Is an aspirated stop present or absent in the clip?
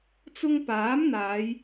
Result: absent